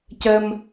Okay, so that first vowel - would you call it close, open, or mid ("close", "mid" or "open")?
mid